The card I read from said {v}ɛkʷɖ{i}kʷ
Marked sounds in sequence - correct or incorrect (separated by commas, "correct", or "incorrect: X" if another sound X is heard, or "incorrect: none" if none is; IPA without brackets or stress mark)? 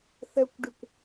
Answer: incorrect: θ, correct